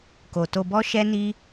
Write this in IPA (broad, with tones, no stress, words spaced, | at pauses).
ko˨to˧bɔ˦ ʃɛ˦ni˦